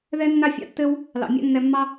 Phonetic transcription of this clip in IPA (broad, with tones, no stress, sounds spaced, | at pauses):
ð ɛ˧ nː a˧ fʲ ɑ̰˧ tː ɘ˧ w | l ɑ̰˨ mʲ a̰˦ nː ɛ˧ mː ɑ˦